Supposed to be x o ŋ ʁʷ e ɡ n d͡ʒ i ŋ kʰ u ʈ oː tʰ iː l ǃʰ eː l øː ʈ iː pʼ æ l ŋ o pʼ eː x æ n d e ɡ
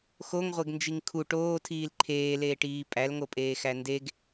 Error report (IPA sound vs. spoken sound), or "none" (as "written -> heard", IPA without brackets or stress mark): øː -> eː